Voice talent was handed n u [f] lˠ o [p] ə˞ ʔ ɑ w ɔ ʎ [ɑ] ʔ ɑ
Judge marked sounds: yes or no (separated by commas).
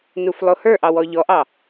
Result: yes, no, no